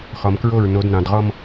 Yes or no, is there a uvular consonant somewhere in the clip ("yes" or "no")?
yes